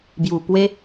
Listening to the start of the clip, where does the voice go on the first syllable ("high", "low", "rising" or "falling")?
low